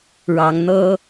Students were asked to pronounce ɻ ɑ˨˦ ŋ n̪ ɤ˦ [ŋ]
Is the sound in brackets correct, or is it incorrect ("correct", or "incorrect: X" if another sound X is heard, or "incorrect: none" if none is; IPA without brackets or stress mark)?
incorrect: none